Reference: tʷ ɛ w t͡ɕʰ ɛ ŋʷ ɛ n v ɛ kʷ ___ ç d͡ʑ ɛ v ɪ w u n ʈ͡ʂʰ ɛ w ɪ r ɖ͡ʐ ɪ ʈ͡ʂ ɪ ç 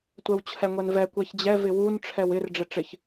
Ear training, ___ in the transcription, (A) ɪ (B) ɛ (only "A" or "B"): B